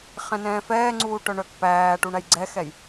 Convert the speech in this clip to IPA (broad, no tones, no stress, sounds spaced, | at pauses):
χ ɛ̃ n ɛ̃ː f ɛː ŋ͡ǀ uː ʈ œ ɳ œ k p æː ʈ u ɳ æ j ɡ͡ǀ ɛ x ɛ j